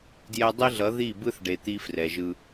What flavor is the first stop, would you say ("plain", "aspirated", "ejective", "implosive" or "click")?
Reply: plain